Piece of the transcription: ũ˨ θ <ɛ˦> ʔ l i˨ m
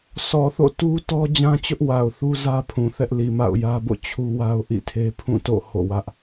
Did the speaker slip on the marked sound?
no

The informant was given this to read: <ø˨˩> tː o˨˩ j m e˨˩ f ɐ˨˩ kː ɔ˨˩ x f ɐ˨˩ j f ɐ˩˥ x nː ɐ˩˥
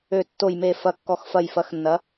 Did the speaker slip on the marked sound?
no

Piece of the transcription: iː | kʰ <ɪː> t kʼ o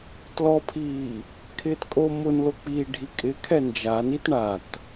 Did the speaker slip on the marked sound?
no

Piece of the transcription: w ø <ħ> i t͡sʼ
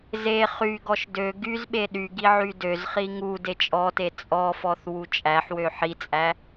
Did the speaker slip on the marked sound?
no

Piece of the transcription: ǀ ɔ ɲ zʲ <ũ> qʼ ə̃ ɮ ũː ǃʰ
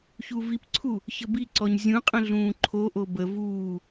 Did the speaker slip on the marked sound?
no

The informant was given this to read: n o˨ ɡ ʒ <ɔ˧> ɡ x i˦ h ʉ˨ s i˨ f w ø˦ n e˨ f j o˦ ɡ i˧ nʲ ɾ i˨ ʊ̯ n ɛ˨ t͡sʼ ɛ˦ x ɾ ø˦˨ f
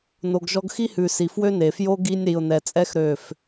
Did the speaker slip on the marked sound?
no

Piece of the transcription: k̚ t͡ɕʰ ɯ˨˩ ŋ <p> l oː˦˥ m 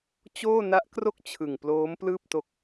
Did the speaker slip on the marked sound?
no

